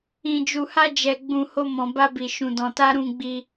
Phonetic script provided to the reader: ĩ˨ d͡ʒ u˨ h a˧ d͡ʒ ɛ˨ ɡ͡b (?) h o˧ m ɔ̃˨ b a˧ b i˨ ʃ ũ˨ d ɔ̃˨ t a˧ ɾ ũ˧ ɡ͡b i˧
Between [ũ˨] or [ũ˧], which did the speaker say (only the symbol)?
ũ˨